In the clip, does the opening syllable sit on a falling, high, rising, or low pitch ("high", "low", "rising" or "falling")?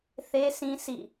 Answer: high